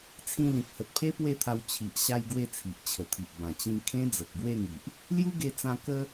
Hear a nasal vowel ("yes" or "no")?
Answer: yes